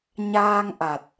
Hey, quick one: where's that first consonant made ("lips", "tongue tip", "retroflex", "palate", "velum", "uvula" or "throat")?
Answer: palate